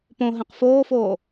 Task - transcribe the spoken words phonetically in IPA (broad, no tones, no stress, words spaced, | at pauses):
põ ɦẽqfoːfoː